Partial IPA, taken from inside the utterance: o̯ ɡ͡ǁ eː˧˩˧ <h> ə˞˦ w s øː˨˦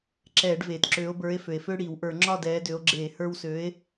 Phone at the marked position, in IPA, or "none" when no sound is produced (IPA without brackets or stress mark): h